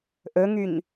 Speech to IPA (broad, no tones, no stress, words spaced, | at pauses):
ʔɵŋyɲ